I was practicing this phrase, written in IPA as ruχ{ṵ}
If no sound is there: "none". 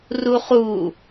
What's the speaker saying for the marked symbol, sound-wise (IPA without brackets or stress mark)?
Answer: u